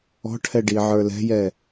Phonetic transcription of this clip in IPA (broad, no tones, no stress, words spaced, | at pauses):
ɔ̤ʈʰɛ ɖiʕə˞lɛ̤jɛ